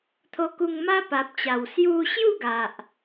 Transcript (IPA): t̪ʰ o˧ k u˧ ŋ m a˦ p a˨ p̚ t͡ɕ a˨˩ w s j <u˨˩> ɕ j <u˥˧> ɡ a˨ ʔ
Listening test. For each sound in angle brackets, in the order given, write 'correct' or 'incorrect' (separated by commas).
incorrect, correct